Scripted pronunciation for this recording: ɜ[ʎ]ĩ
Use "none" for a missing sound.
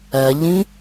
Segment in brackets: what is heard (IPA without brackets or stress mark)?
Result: ʎ